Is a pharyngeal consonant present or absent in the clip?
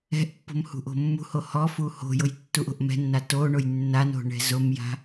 absent